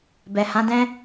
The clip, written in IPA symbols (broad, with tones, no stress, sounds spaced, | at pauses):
b ɛ˨ h ã˨˦ d ɛ̃˦